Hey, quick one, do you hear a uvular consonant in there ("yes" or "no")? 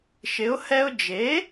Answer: no